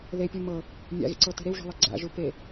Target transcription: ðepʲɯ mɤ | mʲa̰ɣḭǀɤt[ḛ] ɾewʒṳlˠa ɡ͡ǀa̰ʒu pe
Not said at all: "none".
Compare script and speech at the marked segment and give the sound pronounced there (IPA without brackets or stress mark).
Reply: e̤